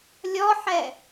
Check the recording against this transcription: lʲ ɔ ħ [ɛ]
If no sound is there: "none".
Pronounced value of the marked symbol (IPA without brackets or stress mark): ɛ